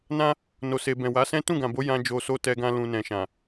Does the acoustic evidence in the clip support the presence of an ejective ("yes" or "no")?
no